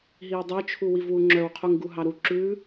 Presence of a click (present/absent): present